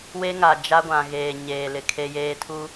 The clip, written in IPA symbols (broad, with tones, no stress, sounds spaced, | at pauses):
w e˦ ŋ a˨ d͡ʒ a˦ ɡʷ ã˨ ɣ eː˨ ɲ eː˨ l ɪ˨ kʰ e˦ j eː˦ tʰ u˦